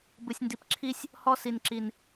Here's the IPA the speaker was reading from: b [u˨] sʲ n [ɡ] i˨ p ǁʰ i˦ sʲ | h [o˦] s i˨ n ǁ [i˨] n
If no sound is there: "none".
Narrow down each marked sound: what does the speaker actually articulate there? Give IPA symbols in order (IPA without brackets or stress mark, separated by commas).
ɯ˨, d, ɔ˦, i˨